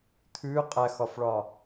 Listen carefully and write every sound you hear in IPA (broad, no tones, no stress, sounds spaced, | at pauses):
t̪ʰ ʉ qʼ æ x ɒ f ɭ ɒ